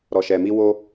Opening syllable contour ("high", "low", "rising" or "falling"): low